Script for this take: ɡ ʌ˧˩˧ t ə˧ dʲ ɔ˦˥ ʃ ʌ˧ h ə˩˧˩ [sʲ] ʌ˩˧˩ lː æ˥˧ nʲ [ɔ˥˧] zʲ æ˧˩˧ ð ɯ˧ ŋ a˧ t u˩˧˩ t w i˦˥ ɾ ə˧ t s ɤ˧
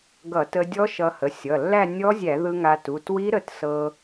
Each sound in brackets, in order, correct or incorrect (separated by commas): correct, incorrect